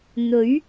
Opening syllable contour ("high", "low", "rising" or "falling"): rising